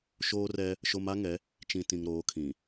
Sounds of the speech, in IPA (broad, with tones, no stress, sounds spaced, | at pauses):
ʃ oː˦ r ɛ˦ | ʃ o˦ m a˦ ŋ ɛ˨˦ | t͡ʃ ĩ˨ t ĩ˨ ŋ ɾ oː˨˦ kʰ ĩ˨